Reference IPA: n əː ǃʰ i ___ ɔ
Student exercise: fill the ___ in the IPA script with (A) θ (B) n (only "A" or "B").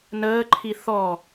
A